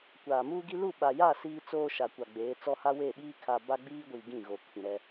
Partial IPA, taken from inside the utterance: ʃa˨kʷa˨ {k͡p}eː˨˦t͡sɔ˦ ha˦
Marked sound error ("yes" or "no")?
yes